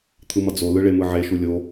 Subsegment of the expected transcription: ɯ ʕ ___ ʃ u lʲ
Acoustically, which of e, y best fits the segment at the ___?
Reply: e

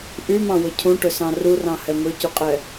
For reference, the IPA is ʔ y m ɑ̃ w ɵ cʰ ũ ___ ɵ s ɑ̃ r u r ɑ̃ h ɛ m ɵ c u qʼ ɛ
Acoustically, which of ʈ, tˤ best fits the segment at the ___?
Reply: ʈ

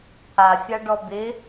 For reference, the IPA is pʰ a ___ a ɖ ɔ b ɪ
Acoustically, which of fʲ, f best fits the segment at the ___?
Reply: fʲ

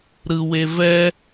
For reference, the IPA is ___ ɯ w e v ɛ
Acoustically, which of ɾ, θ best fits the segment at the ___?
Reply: ɾ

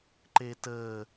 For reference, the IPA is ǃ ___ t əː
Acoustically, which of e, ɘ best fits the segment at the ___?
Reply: e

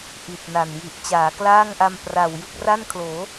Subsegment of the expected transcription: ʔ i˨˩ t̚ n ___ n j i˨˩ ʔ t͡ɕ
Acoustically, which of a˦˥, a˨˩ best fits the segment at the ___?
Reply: a˨˩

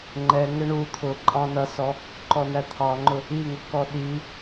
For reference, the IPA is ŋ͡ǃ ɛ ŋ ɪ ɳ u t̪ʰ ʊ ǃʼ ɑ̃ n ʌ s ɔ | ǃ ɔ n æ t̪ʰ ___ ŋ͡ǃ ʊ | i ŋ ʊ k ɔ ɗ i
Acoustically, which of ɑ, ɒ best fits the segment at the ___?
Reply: ɑ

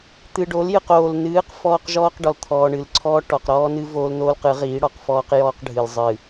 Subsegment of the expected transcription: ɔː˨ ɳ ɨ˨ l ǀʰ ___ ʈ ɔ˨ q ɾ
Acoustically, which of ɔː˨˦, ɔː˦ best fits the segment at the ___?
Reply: ɔː˦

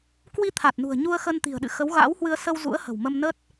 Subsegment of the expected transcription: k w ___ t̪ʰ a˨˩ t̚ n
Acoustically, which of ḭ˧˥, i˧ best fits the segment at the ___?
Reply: i˧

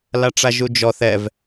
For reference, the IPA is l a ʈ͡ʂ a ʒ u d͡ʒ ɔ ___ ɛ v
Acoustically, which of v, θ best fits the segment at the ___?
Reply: θ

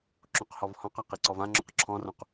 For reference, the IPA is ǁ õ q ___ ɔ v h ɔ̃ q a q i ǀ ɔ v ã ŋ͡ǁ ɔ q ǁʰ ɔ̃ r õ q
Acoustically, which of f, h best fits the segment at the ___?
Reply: h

